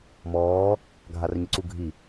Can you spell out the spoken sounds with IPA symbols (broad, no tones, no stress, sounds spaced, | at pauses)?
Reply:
m ɔː | ɡʱ a r ɲ ɪ ǀ u ɡʱ i